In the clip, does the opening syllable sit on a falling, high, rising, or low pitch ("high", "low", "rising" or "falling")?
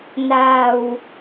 low